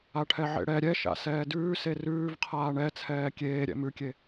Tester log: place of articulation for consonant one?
retroflex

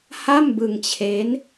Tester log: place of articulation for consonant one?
glottal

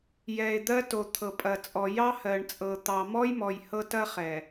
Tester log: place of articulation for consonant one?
palatal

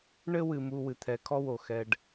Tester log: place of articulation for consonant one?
retroflex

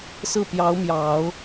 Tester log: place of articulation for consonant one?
alveolar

